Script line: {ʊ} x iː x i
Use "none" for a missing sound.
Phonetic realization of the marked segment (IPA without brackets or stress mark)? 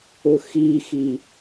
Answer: ʊ